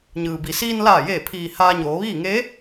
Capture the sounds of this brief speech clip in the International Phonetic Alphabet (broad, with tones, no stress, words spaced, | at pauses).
ɲɯː˩bi˩ siː˧nlaː˧˩jeː˧˩pʰiː˩ haː˧ɲoː˩˧ʋiː˥˨ ŋe˧˥